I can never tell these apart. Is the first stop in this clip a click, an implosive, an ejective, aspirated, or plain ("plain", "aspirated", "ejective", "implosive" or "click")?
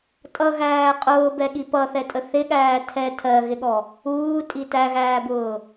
ejective